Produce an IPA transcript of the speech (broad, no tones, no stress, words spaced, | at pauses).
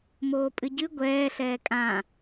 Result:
moːpʼɨɟɨ ɡʷɛː ɬɛːkʼã